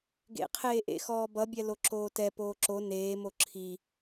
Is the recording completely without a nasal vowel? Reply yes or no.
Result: yes